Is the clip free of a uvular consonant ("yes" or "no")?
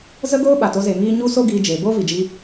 yes